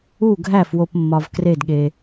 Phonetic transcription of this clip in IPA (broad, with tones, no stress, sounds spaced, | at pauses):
u˥˩ ɡʱ æ˥˩ f w o˨ p mː ɒ˨ v k r e˥˩ d ɠ e˨